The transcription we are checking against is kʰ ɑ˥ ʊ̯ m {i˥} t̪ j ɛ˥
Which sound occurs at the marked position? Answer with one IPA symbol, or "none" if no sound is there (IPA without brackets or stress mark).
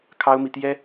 i˨